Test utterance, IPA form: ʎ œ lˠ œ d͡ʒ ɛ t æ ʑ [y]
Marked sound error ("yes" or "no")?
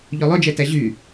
no